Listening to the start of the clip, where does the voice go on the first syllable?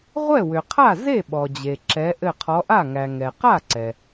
falling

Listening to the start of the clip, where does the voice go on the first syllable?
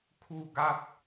falling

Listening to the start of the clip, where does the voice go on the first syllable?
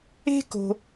high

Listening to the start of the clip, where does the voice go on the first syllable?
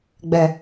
low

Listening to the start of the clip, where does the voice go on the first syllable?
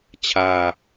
low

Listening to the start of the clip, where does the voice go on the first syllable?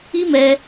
high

